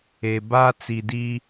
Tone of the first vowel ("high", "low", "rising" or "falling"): low